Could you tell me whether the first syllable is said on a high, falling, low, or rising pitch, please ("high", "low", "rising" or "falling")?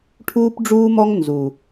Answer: high